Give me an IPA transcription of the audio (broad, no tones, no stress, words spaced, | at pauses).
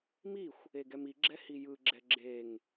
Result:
mixʷ | eɡɛmiɡ͡ǁɛ hijɯɡ͡ǁɛ ɡ͡ǁeŋ